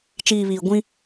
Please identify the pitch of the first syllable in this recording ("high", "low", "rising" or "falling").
low